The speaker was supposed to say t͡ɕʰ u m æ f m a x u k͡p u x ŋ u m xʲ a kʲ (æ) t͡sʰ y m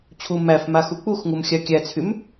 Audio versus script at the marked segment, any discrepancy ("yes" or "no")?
no